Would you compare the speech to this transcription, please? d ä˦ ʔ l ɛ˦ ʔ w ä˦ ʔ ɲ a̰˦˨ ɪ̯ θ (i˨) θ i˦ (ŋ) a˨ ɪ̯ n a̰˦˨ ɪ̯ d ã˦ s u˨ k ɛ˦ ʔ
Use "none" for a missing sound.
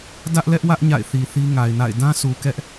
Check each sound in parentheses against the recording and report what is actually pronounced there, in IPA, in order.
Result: i˨, ŋ

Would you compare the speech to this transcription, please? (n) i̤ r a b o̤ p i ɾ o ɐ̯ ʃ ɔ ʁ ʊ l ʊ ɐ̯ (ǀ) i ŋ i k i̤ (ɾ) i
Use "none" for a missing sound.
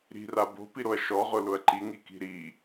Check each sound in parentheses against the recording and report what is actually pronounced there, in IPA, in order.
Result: ɾ, ǃ, ɾ

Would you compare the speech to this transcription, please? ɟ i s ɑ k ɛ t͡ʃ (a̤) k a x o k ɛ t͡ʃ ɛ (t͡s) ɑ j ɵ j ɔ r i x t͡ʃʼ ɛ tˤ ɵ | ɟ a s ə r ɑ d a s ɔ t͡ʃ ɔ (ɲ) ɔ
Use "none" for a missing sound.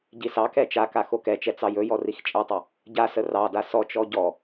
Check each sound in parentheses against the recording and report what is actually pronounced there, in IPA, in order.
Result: a, t͡s, ɟ

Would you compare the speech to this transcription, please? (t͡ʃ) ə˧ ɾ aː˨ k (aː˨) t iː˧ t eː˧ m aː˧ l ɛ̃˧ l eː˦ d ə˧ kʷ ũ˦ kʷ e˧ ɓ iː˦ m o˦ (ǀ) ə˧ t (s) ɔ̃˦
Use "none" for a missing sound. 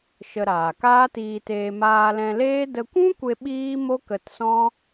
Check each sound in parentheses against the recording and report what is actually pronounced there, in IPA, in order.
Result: ʃ, aː˦, k, s

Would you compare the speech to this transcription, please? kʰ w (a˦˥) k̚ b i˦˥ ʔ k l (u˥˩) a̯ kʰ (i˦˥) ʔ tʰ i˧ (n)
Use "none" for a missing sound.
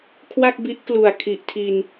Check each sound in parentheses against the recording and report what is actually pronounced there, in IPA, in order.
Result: a˥˩, u˨˩, i˨˩, n

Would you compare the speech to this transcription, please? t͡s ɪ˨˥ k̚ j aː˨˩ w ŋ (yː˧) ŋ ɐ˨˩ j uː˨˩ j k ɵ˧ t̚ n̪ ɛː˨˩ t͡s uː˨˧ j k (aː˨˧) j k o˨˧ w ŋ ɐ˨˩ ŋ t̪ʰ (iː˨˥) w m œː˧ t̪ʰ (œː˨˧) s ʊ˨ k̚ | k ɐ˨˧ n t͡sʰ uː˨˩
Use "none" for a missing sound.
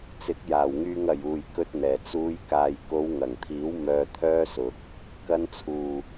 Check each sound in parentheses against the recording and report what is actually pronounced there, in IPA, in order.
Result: yː˧, aː˨, iː˨˥, œː˥

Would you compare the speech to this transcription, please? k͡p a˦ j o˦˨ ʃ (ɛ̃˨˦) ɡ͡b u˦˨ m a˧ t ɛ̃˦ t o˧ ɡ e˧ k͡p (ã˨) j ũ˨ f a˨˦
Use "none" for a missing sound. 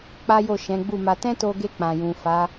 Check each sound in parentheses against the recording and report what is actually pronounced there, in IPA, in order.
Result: ɛ̃˨˦, ã˨

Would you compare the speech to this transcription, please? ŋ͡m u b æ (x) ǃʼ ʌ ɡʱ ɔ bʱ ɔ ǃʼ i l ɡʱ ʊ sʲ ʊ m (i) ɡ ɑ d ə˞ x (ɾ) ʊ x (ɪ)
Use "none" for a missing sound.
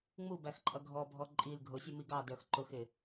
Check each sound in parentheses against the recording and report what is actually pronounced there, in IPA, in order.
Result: x, i, ǃ, ɪ

